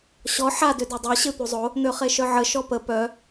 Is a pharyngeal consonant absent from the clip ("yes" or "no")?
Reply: no